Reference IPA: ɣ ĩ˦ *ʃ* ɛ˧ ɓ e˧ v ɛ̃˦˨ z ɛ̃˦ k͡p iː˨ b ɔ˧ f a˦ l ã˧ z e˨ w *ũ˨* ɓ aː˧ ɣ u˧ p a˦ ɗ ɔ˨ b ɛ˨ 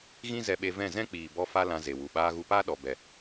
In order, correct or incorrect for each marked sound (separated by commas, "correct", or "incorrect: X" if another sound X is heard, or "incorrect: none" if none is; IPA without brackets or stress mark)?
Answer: incorrect: z, incorrect: u˨